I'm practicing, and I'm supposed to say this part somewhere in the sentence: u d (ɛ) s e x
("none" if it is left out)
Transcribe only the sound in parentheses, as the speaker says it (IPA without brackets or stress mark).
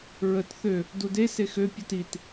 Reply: e